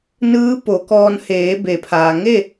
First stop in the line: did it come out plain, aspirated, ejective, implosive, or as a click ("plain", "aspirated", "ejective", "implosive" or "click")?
plain